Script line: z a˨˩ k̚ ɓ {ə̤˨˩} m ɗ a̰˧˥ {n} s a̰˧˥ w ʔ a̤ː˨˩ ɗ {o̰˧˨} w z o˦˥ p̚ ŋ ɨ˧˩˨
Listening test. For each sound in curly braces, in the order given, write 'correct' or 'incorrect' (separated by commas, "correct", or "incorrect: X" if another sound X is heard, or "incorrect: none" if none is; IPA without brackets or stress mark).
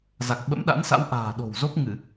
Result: incorrect: ə̰˧˥, correct, incorrect: o̤˨˩